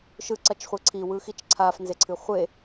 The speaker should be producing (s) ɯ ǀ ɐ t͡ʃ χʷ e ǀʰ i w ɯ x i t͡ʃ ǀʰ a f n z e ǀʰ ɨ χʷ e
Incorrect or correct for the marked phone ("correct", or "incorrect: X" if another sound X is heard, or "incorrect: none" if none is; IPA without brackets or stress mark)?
incorrect: ʃ